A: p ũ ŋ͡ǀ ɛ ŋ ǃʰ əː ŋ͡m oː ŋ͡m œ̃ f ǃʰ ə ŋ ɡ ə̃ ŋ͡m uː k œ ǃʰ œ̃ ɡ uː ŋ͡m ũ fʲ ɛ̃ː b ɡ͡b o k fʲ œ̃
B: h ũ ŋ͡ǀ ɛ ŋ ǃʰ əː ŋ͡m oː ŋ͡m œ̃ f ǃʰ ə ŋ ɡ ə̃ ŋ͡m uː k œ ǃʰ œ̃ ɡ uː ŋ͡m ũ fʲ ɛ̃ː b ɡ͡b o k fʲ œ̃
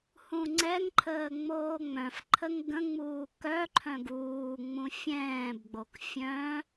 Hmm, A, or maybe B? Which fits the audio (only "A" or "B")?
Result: B